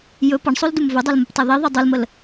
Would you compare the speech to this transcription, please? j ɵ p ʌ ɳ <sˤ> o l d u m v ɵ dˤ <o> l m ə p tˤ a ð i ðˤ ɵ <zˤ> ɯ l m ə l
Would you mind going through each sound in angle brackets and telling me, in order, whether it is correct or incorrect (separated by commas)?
correct, correct, incorrect